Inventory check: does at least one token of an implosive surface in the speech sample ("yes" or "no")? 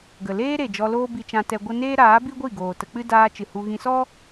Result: no